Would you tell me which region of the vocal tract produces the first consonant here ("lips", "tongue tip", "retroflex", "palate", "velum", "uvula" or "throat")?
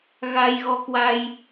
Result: velum